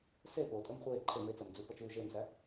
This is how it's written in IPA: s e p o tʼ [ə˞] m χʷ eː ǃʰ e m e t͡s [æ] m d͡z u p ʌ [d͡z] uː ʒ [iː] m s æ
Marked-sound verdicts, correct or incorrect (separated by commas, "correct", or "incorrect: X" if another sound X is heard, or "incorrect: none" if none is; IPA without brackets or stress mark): correct, correct, incorrect: t͡ʃ, incorrect: eː